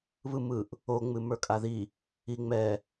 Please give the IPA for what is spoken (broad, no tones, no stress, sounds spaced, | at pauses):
β ɯ m ɯ ʔ | o ŋ͡m ɨ m ə˞ kʼ a ð i | i ŋ͡m ɛ